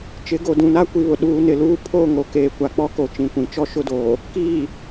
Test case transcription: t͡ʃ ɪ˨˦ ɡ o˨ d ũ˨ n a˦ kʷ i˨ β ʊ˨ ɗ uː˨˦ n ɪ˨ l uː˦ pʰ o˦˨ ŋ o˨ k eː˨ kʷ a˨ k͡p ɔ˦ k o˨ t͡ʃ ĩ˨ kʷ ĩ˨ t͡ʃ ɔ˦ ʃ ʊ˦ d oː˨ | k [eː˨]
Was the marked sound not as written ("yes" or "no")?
yes